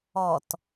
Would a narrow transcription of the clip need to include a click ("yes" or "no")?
no